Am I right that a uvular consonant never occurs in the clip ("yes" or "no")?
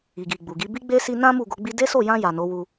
yes